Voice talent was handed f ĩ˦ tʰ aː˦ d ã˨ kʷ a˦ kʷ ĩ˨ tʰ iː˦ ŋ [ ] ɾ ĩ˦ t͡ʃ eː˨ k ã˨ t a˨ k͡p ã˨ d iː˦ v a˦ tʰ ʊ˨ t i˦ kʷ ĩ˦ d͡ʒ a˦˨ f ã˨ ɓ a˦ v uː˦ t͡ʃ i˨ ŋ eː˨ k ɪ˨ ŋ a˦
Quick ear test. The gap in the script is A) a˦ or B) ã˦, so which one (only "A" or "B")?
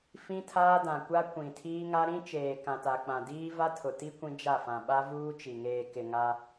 A